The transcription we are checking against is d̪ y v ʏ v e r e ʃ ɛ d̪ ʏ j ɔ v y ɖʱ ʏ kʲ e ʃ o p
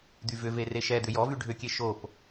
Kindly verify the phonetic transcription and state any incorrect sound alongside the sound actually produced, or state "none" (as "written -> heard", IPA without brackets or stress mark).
none